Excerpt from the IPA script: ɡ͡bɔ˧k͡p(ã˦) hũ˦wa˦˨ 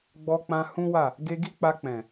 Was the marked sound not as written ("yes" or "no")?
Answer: yes